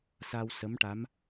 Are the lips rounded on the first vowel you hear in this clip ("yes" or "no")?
no